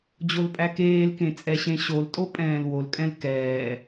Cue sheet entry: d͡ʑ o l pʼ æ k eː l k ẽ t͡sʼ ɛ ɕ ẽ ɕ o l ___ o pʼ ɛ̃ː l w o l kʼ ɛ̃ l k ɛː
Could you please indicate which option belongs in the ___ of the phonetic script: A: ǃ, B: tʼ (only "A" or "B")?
B